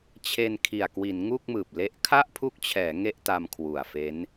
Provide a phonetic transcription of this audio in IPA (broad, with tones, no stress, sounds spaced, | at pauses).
t͡ɕʰ e˧ n kʰ i˨˩ a̯ k w i˩˦ n ŋ u˥˩ k̚ m ɯː˨˩ p̚ l e˦˥ ʔ kʰ a˥˩ ʔ pʰ u˦˥ k̚ t͡ɕʰ ɛː˩˦ ŋ e˥˩ ʔ t a˧ m kʰ w u˨˩ a̯ f e˦˥ n